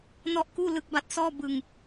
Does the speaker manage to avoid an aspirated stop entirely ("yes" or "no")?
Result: yes